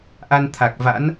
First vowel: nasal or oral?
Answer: oral